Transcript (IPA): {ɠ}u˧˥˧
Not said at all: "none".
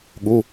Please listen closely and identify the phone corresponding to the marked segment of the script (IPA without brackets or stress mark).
ɠ